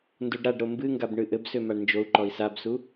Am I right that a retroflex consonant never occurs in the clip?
no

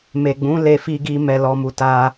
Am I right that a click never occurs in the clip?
yes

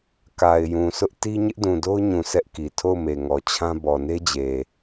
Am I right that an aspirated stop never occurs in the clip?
no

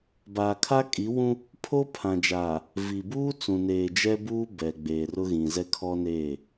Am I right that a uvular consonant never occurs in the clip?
yes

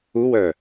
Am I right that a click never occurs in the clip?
yes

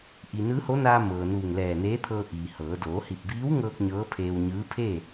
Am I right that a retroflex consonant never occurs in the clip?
yes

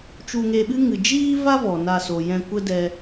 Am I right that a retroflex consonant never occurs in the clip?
yes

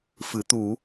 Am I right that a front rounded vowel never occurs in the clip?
yes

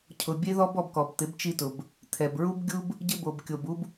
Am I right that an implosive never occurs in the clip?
yes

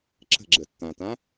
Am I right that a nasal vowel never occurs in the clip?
no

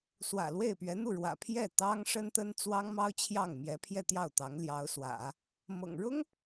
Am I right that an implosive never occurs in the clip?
yes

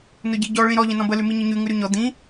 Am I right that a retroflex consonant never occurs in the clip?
no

